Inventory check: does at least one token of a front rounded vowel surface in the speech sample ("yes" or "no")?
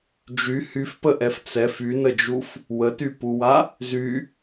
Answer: yes